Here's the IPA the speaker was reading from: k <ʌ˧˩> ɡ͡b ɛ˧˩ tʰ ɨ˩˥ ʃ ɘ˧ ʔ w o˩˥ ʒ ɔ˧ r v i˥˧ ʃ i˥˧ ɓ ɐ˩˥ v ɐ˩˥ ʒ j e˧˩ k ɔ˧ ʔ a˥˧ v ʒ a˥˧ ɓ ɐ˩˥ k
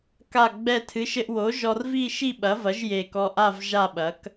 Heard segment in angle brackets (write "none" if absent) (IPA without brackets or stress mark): a˧˩